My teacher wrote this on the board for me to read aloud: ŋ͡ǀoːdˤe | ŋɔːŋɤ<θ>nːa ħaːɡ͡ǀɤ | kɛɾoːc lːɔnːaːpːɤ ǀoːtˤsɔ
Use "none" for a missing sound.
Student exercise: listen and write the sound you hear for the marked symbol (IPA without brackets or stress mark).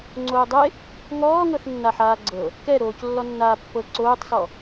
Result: θ